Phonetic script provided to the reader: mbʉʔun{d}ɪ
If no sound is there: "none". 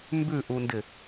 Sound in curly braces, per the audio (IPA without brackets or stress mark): d